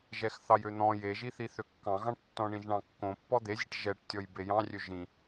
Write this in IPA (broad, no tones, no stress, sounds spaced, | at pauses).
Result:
ʒ ɛ x θ ɑ j ø n̪ ɔ̃ j e ʒ i θ i θ ø kː ɑ̃ ɣ ɑ̃ ʈ tː ɔ̃ ɳ ĩ ʒ ɳ ɑ̃ kː õ pː ɔ d̪ e zʲ e ʈ ʒ ɛ ʈ tʲ ɔ j b e j ɑ̃ rʲ ø ʒ ĩ